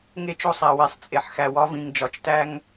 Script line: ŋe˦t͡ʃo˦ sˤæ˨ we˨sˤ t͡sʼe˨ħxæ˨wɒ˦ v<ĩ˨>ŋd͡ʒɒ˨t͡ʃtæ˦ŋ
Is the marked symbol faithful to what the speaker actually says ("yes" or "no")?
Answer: yes